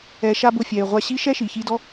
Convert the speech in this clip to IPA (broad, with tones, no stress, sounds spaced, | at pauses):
ɛ˧ ʃ a˥ b ʊ˧ fʲ ɛ˩ ɪ̯ ʁʷ a˧ ɕ i˥ ʃ ɛ˥ ʃ i˩ ç i˧ d ɔ˥